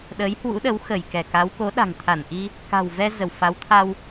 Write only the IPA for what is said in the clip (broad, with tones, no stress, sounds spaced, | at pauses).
ɗ əː˨˦ j h w ṵ˧˥ ɗ ə˨˦ w x ə˧˩ j k ɛ˧˩ k a˨˦ w k o˨˦ ɗ a̤˨˩ ŋ t̪ʰ a˧˩ n ʔ i˧ | k a̤˨˩ w v ɛ˧ z ə˧˩ w f a˨˦ w t̪ʰ a˧ w